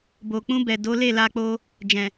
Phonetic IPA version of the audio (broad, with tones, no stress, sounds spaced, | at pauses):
b o˨ k͡p ũ˧ b ɛ˨ d o˨˦ l e˦˨ l a˧ k͡p o˧ | d͡ʒ ɛ̃˨